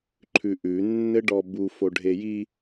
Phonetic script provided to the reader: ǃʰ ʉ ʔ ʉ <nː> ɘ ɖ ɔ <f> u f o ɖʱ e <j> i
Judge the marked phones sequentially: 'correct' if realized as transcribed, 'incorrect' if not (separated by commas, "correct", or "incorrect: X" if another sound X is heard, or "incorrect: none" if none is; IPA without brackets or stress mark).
correct, incorrect: b, correct